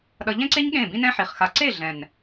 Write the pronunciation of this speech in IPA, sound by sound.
ɗ ʌ˧ ʎ ɛ̃˦ ǀ e˦ ɲ ɠ ẽ˦˨ b ĩ˦ n ɛ̃˦ ħ i˨ χ x a˧ ǀ e˦˨ ɮ ɛ̃˨ n

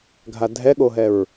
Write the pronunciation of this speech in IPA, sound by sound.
ɡʱ a dʱ ɛ ɠ o ɦ ɛ ɹ

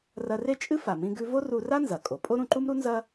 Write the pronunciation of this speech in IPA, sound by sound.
r ɐ˧ r e˥ t͡ʃʼ ɨ˥ f a˩ m ĩ˧ ɡ ʉ˧ v o˥ r u˧ r a˥ n z ɐ˩ kʼ o˩ pʼ o˥ ɾ ũ˧ ǃ u˥ m ɾ u˥ n z ɐ˥

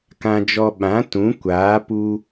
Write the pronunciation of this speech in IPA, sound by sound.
k ã˧ d͡ʒ ɔ˧ ɓ ã˨˦ t ũ˨˦ kʷ aː˨˦ p u˧

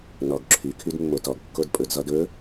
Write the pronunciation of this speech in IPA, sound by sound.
n ɔ ɡ ǁʰ y kʰ y d mː o t ɔ ɡ kː o d pʼ ɵ d z ɔ d ɵ

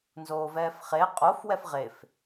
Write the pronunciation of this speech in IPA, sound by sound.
n z oː v ɛː f χ e qʼ o f w ɛ f ʁ e f

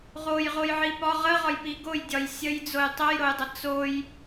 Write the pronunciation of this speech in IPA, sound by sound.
ʁ o j ʁ o j ʕ i p ɒ ʁ ə ʁ ɒ j p i ɡ o j dʲ ɒ j sʲ ə j d͡z o j tˤ ə j ɾ o j dˤ ə t͡s o j

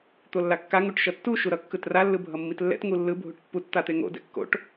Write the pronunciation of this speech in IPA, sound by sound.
t̪ o lː a kː a ŋ u ʈ ʃ ʌ tː u ʃ u ɾ ʌ kː ɯ t r a lː ɯ bʱ ʌ mː i t lː ɛ̰ t ŋ u lː ɯ bʱ u ʈ pː u t t̪ a t̪ e ŋ o̰ d ɛ̰ kː o̰ ʈ

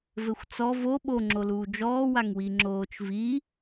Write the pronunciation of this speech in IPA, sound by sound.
v ɘ xʷ t͡s ɔ v o ɓ o ŋ͡ǁ o l uː d͡ʒ ɔː w a ŋ w i ŋ͡ǁ oː t͡ʃ v i

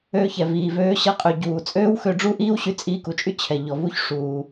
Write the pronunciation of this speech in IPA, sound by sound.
øː˧ ç ɛ˩ v iː˩ v øː˧ ɕ ɐ˧ qʼ ø˩ ɟ uː˩ t͡sʼ øː˥ w x ø˧ ɖ͡ʐ u˥ ʔ iː˥ w ɕ y˧ t͡sʼ iː˧ k u˩ t͡ʃʼ y˥ t͡ɕʰ ɛ˩ ʎ ɔ˩ v u˥ ç ʂ uː˩

